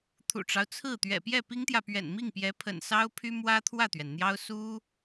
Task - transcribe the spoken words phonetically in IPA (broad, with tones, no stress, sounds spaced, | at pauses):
t̪ʰ ṵ˨˩ ʈ͡ʂ ɑ˦ ʊ̯ t͡sʰ ɹ̩˥˩ t̪ ɥ ɛ̰˨˩ p j ɛ˥˩ p i˥ ŋ t̪ j ä˨ p ɥ ɛ̰˨˩ n m i˥˩ ŋ p j ɛ˧˥ pʰ ə̰˨˩ n s ɑ˥ ʊ̯ pʰ y˥ m w ä˥ t̪ʰ w ä˥˩ t̪ ɥ ɛ˩ n n̪ j ɑ˥ ʊ̯ s u˥